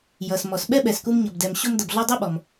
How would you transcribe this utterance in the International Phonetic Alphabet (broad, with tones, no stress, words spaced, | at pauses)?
jʌ˩s mɔ˩sɓɛ˥ɓɛ˩sku˧m ɲʌ˩bdɛ˩m ɕo˧mdʌ˩bɮɔ˧ dˤɛ˥ɓɔ˩m